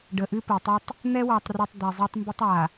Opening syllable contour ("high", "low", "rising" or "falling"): low